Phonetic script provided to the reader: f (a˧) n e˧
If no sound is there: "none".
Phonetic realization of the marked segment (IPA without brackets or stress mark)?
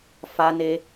a˧